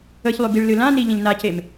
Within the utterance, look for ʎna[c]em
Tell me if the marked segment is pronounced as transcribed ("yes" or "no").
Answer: yes